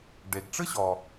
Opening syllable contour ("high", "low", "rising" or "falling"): low